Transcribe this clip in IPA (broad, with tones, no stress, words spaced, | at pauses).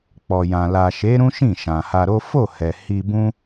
k͡pɔ˨jã˨ la˨ʃe˨˦ ɾũ˦ʃĩ˦˨ ʃã˨ha˧ɾo˦ fo˦˨hɛ˨ hi˧bũ˦